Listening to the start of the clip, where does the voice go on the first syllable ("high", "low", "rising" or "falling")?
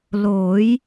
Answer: rising